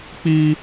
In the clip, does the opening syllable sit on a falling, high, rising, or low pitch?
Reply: high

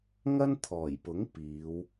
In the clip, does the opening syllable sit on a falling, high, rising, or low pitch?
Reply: high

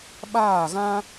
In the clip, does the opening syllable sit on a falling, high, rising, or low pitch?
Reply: falling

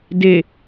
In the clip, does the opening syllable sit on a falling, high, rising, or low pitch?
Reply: low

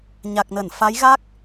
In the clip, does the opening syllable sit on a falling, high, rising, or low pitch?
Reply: low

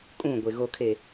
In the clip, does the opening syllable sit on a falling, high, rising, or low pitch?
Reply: falling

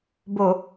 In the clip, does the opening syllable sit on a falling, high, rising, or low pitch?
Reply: low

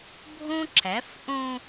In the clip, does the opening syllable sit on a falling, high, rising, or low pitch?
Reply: high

